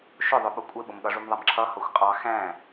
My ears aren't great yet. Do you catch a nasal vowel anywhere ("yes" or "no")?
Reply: yes